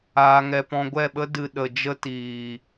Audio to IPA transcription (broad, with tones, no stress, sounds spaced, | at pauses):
aː˧ ŋ ɛ˧ p ɔ̃˧ ɡʷ ɛ˦˨ ɓ ə˦ d ɨ˨ ɗ ə˨ d͡ʒ ə˦ t iː˨